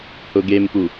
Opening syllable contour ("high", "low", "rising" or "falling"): low